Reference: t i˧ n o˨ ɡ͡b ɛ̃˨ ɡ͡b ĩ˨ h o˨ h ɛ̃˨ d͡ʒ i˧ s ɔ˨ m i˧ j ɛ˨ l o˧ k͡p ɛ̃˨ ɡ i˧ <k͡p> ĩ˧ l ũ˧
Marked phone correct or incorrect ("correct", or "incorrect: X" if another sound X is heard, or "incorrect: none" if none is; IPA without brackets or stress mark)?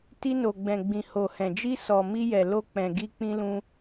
correct